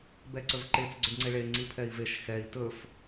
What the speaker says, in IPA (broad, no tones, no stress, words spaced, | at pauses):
bɛǀɵvǃet͡s ɡ͡ǀɵɖŋ͡ǀeɭe ŋ͡ǀipʰɛi̯veʃ xɛi̯ tɵf